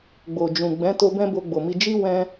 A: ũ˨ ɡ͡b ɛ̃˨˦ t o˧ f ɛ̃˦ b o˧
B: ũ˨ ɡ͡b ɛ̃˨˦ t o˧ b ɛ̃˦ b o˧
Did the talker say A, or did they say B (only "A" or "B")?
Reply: B